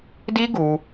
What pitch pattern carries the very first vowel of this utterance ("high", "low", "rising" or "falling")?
high